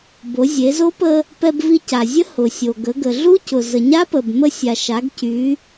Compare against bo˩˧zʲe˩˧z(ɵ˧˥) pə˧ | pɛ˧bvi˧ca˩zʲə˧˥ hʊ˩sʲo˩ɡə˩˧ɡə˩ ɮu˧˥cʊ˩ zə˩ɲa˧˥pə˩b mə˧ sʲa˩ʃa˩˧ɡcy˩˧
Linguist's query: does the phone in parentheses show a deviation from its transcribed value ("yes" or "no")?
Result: yes